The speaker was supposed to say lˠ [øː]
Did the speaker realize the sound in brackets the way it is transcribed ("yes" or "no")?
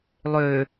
yes